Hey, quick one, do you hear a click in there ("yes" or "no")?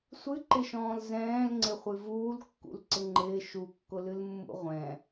yes